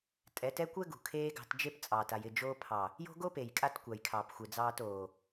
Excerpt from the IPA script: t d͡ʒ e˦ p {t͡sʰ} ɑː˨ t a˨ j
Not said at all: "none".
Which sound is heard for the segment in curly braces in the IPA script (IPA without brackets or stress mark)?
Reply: t͡sʼ